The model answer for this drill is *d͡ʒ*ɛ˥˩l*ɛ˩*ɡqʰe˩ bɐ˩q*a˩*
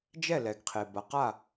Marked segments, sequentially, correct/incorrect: correct, correct, incorrect: a˥˩

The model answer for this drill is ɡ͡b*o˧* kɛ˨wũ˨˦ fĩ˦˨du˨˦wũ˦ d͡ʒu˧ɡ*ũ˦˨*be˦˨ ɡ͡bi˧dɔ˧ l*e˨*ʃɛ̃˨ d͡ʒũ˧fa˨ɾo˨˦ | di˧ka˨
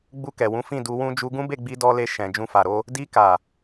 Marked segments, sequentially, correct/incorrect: incorrect: u˧, incorrect: ũ˦, incorrect: e˧

